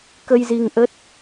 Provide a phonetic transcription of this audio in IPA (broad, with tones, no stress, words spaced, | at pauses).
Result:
kə˧jzi˧ŋ ʔə˦˥t̚